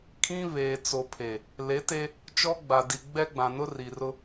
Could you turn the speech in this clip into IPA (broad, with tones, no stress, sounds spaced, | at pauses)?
kʰ ĩ˦ β eː˨ t͡s o˨ pʰ e˨ | l e˨˦ t e˦ | t͡ʃ ɔ˦ ɡ͡b a˨ d i˨ ɡ͡b ɛ˦ ɡ͡b ã˨ n ʊ˦ r i˨ r ʊ˦